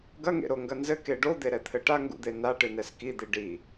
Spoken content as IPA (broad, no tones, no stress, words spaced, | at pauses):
ɡɐŋḛɾoŋɡɐ nzɘke ɖod̪eɾɛt̪ʰɘ ʈaŋɡṵd̪e naʈɨnɛs kid̪i ɖi